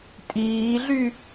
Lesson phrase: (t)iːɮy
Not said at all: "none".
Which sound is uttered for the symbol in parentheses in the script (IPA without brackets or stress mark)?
tʼ